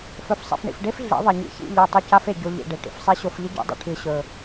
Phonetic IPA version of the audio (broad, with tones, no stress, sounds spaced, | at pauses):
f ɵ˨ f sˤ ḭ˨ f ɳ ḭ˨ f ɖ e˦ f ɮ ḭ˨˦ ðˤ ɐ˨ ɲ ḭ˨ ç ḭ˦˨ ʎ ɐ˦˨ tˤ ɨ˧ c a˦ f e˨ ɟ o˧ ʎ ḭ˨ ɖ e˨ ʈ ḭ˨ f sˤ e˦ ɕ o˧ f ʎ i˦ ɟ ṵ˨˦ dˤ ṵ˨ ʈʰ ɨ˨ ɕ ɵ˨